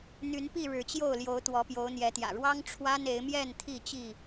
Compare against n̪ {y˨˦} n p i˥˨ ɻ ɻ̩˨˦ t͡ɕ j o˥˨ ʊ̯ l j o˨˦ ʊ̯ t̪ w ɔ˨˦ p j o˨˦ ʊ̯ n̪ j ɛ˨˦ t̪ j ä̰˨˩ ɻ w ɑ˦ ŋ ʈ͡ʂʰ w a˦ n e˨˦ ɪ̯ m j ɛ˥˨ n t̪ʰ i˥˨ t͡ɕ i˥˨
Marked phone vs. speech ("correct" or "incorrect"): correct